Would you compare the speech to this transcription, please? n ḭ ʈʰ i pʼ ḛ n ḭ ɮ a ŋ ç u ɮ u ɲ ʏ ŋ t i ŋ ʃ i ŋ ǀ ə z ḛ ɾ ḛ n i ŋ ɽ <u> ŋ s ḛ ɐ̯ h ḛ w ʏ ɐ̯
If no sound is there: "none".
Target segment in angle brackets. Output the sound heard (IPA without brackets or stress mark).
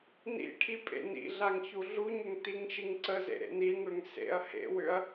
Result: ʏ